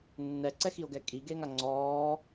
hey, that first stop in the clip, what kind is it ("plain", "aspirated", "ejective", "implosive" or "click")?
click